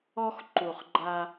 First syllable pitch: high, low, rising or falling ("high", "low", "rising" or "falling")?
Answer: high